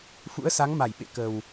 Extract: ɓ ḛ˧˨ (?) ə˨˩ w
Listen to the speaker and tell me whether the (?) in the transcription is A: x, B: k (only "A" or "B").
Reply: B